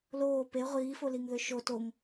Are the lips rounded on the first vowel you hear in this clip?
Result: yes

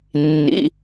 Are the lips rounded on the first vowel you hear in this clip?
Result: no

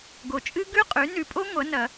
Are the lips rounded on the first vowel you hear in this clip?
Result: yes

